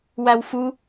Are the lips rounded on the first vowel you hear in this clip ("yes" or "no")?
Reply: no